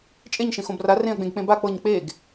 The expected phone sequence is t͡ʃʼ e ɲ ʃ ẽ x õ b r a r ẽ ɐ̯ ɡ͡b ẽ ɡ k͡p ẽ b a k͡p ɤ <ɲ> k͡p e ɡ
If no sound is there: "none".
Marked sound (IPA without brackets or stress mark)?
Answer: ɲ